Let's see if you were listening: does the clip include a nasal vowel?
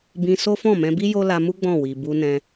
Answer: yes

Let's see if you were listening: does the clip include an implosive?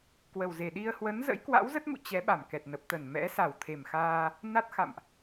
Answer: yes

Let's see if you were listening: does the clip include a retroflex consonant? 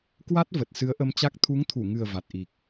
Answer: no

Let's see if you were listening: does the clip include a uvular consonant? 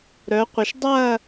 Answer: yes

